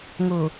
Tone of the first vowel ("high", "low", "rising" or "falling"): low